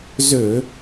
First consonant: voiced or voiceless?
voiced